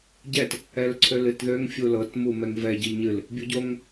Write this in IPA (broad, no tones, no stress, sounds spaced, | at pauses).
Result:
ɟ ɛ t | ɛ l ǀʰ ø l ɨ t ð ø ŋ fʲ u l ɤ t m u m ɛ ŋ v ɛ ɟ ɨ ʎ ɲ ɨ l | bʲ u ɟ o ŋ